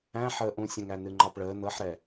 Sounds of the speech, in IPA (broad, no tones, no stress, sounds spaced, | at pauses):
æ̃ ħ əː ʔ ũ sʲ ə̃ ŋ æ n ɨ ŋ͡ǃ ɑ p ɭ əː n ɤ ħ ɾ ɛ